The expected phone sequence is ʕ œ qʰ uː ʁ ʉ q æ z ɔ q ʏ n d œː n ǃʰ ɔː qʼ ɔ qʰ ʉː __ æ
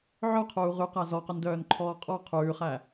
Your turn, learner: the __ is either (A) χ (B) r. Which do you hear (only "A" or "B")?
A